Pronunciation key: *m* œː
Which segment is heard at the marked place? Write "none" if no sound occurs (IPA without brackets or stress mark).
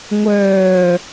ŋʷ